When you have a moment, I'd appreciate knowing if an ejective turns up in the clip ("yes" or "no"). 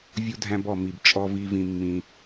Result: yes